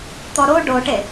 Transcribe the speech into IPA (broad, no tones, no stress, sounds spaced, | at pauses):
t̪ ɔ ɾ o ɖ o ʈ e